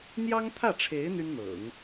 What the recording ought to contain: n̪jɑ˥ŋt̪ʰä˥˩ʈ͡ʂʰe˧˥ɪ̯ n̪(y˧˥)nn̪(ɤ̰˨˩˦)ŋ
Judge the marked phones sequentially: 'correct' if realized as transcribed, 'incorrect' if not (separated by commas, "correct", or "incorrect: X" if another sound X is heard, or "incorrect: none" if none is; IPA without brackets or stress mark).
incorrect: y˥, correct